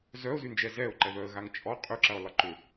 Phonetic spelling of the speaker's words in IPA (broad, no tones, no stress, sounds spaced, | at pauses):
z œ ʊ̯ z y n d͡ʒ ɛ z ɛ ʊ̯ ǃ ɛ ð œ ə̯ ɣ a ŋ t͡ʃʼ ɔ qʼ y ǁ ɐ ʊ̯ lˠ ɪ ǃ ʏ